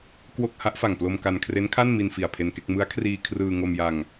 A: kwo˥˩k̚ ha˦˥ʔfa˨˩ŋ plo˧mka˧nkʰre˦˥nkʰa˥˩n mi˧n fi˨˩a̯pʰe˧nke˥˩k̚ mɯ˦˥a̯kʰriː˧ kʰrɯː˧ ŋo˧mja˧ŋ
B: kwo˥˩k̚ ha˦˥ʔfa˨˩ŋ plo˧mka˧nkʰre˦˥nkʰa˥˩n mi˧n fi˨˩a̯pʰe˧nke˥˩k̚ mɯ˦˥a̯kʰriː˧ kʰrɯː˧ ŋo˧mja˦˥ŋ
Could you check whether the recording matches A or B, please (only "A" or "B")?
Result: A